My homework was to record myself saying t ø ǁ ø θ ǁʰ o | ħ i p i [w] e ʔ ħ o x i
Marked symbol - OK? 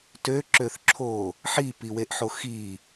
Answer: yes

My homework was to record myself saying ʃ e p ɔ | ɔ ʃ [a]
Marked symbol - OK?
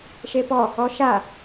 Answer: yes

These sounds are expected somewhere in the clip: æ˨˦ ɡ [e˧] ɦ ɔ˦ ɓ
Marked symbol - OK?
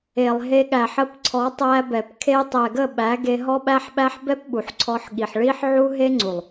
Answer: yes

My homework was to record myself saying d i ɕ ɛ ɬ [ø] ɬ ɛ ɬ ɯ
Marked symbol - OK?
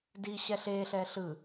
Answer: no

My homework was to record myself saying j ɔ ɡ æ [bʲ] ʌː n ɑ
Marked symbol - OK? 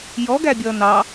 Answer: yes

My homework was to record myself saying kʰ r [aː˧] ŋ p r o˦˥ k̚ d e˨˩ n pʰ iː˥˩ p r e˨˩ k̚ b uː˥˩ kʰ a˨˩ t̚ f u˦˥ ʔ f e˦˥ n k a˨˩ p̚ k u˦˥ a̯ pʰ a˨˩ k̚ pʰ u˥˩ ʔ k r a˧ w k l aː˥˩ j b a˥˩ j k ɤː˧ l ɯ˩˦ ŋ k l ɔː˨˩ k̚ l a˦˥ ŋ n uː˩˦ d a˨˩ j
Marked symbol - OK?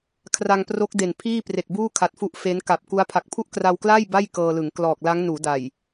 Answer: no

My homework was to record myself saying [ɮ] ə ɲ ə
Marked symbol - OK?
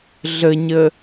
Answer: yes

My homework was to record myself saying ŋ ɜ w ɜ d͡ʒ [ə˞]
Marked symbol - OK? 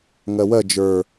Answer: yes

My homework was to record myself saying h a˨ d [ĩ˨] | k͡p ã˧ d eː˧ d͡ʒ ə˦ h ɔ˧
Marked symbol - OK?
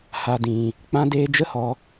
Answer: yes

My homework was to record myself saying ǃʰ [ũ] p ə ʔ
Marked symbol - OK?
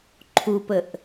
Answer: no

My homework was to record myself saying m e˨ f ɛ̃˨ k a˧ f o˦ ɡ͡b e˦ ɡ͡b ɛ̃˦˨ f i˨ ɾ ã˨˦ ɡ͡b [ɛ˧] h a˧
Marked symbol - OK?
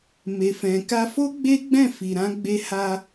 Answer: no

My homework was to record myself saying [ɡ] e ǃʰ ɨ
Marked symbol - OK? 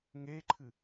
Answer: no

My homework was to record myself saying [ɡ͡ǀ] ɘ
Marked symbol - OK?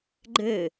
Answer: no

